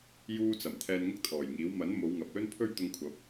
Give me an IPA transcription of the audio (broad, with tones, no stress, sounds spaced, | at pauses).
j uː˧ t͡s ɐ˨˩ m t̪ʰ ɛː˧ n ŋ ʊ˥ k̚ t̪ʰ ɔː˨˩ j ŋ iː˨˥ w m ɐ˨˥ n m o˨˧ w ŋ ɐ˨ p̚ l ɵ˥ n pʰ ɵ˥ ɥ t̪ ʊ˧ ŋ kʷʰ ɐ˨˥ p̚